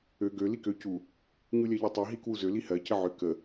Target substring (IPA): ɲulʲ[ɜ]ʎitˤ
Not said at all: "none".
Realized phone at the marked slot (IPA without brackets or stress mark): ɜ